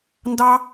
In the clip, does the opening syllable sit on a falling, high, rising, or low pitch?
high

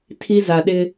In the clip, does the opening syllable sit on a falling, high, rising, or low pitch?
high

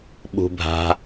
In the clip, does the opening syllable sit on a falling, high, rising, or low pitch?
low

